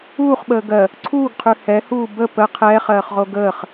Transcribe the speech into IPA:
uː χ ɓ əː ɡ ɜ | ǀʰ uː ɡ qʰ ʉ h ɛ h uː b ə p ə qʰ ɛː χ ɜː χ ʁ o ɡ əː χ

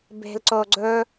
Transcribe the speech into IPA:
b e̤ l ǀ o ɡ͡ǀ ɵ

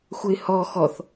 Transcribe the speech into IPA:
xʷ ə ɪ̯ h ɔ x ɔ θ

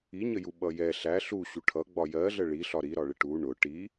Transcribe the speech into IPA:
i ɲ ə j u ɓ ʌ j ɛ ɬ æ ɬ u ɕ u ʈʰ ʌ ɡ͡b ɒ j ɜ ɮ ə ɭ i ɬ ɒ ɾ i ɾ ɒ ɭ ɪ ʈ u ɳ ʊ ʈ i

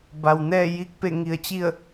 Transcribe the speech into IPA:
b a˩ w n ɛː˥˨ j i˥˨ k̚ p e˥˨ ŋ i˧˩ ə̯ t͡ɕ i˥˨ ə̯

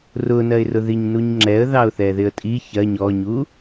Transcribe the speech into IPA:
r ʊ n ɜ ɪ̯ r ʊ ð i ɲ n u ɲ ŋ͡ǁ ɛ ə̯ ð ɑ ʊ̯ θ ɛ ð ɪ ə̯ tʼ i ç ɜ ɲ ɔ ɲ u

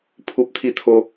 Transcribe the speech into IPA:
pʰ u˨ p̚ t̪ʰ i˧ t̪ʰ o˧

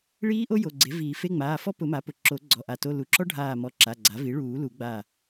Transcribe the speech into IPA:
ɭ iː˦˥ ʔ o˦˥ j o˩˧˩ ɡ͡ǀ e˩˥ v iː˨˩˦ f e˧˥˧ ŋ͡m aː˩˧˩ f ɔ˦˥ p ʊ˨˩˦ m a˩˥ p ʊ˩˧˩ ǁ o˨˩˦ ɡ͡ǀ ɔ˧˩ ʔ a˧˩ t o˧˥˧ l u˩˥ ǁ ɔ˦˥ ɖʱ aː˧˩ m ɔ˧˩ ǁ a˩˧˩ ɡ͡ǀ a˩˥ v i˩˥ ɭ uː˨˩˦ l u˨˩˦ ɡ͡b a˧˩

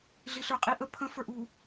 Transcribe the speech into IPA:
ɮ i ɬ ə˞ qʼ i ʔ ə pʰ ə̃ f ə˞ ʔ u

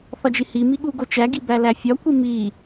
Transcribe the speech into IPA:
θ ɒ d͡ʒ i h i m i ɠ u ɡ o t͡ʃ æ ɡ i b æ l æ fʲ ɒ kʷ i m i

